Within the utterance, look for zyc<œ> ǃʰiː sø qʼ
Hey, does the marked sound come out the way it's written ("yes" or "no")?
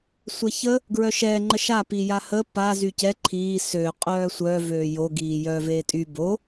no